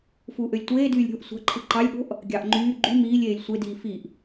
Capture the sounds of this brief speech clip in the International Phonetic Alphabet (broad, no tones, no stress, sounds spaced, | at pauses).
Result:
f uː ʔ ø lʲ tʷ eː d yː lʲ ɾʲ o̤ ʔ sʷ ɑ̤ ǃʰ ɯ ǃ ɑ lʲ ɠ o̤ ʔ | ɡʲ ɑ ʔ ŋ͡ǃ yː ɡ͡ǃ y m iː lʲ eː lʲ sʷ e d iː f i ʔ